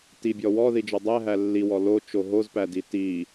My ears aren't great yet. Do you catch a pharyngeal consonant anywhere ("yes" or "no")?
no